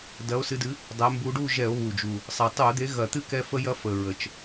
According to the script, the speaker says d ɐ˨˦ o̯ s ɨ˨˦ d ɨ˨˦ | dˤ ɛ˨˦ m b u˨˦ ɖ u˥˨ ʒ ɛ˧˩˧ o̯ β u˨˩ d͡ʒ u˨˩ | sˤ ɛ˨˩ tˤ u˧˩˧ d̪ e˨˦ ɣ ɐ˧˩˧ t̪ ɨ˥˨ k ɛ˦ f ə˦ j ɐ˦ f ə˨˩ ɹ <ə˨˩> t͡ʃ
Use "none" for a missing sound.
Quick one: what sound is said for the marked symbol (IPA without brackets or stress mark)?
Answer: ə˨˩